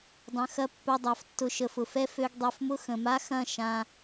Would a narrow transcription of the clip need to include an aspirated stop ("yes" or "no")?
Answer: no